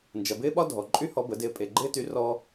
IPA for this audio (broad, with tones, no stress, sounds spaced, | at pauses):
n d͡ʒ ɐ˨ b ɪː˥ ɓ ɒ˥ dʱ ɔ˨ ǃʼ y˥ h ɔ˧˥ b ə˩˥ d ɪː˧˥ pʼ e˨ ɡ͡ǃ ɪː˥ t y˧˥ r ɔ˥